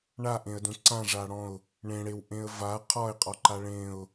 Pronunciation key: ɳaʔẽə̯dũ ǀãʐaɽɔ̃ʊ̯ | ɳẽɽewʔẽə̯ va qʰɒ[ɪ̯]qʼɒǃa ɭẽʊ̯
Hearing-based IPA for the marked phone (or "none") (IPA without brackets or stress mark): ɪ̯